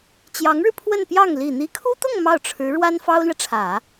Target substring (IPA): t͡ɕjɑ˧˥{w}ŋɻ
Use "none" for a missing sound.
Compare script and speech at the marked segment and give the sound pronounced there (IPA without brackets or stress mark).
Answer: none